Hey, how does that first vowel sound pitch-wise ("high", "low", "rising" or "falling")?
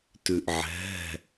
low